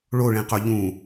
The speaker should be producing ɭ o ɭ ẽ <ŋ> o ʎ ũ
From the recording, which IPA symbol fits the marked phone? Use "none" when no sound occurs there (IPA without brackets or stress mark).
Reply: q